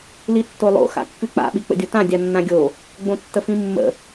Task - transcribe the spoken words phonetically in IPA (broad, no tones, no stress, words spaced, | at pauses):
litːolˠo̰ xa̰kːʉk͡pa̰ ɓik͡pə̰dʲotã dʲanːãɡʲo | ɡ͡bõtːəfĩmːə̰